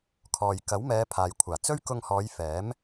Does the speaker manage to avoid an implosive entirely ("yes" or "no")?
yes